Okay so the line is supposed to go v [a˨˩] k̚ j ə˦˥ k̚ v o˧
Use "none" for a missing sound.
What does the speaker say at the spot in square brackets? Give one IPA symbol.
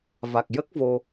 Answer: a˨˩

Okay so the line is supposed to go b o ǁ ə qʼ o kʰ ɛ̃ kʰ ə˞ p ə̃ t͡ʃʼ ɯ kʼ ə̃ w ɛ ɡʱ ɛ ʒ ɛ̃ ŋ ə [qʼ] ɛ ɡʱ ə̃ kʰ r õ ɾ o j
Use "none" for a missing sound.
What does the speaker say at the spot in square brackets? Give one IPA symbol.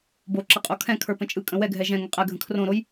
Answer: qʼ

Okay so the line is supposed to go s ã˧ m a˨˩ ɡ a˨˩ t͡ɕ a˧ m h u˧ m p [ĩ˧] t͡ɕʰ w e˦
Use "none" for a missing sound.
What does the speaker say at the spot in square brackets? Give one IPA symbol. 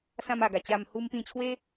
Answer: ĩ˧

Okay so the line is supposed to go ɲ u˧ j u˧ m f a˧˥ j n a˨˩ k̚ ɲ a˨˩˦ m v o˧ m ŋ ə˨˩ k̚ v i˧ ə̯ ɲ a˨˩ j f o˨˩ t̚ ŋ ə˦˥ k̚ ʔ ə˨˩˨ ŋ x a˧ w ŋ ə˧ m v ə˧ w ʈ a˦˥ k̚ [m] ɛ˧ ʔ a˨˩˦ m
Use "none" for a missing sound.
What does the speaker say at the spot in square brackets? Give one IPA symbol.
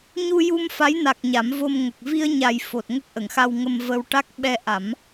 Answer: ɓ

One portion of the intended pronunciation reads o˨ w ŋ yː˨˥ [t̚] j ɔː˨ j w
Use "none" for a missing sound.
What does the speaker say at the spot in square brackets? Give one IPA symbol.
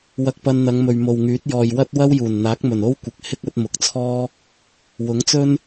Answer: t̚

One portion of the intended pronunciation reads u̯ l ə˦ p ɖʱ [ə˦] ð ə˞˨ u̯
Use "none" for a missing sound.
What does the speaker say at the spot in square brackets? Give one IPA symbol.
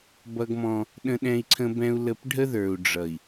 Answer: ə˦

